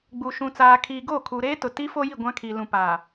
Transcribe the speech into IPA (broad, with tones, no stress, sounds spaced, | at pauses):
ɡ͡b u˨ ʃ ũ˨ t͡s aː˨ kʰ iː˨ ɡ o˦˨ kʰ u˨ ɾ eː˦ t ʊ˨ t i˦ f o˦ j i˦˨ ɡʷ ã˦ kʰ i˨ l ũ˨ p aː˨